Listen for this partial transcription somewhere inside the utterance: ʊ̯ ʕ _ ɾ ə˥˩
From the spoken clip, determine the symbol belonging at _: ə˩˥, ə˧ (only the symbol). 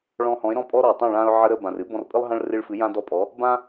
ə˧